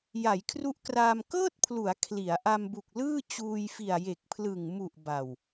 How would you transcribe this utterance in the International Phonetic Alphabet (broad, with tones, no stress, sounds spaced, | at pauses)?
j a˩˦ j kʰ r u˦˥ ʔ k r aː˧ m k ɤː˥˩ t̚ pʰ l u˩˦ a̯ kʰ l i˩˦ a̯ ʔ a˧ m b u˨˩ k̚ l ɯː˥˩ t͡ɕ uː˧ j f i˨˩ a̯ j e˨˩ k̚ pʰ l ɯ˨˩ ŋ m u˨˩ ʔ b a˨˩ w